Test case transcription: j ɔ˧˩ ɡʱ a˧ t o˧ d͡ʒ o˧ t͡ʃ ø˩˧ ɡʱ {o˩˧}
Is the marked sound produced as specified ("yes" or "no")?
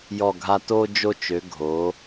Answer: yes